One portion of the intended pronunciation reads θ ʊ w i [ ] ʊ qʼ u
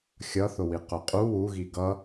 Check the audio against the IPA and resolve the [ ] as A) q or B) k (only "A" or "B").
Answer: A